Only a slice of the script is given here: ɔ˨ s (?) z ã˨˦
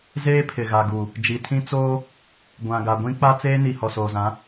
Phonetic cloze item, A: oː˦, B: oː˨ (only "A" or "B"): B